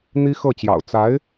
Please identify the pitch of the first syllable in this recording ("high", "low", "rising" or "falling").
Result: high